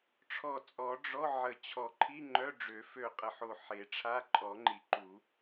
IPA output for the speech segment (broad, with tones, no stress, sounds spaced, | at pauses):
ʈ͡ʂʰ ɔ˧˩ t͡sʼ ɔ˨˩˦ ɖ͡ʐ ɔ˧˥˧ ʕ ə˨˩˦ t͡ɕʰ ɔ˨˩˦ ǃʰ i˧˥˧ ŋ͡ǃ œ˧˥˧ ɖ͡ʐ ø˨˩˦ f ø˧˩ qʼ ə˧˩ ħ o˧˩ ħ e˨˩˦ ʈ͡ʂʰ a˧˥˧ ǃʼ ɔ˨˩˦ ŋ͡ǃ i˨˩˦ ǃ u˨˩˦